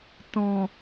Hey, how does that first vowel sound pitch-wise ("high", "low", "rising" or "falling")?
low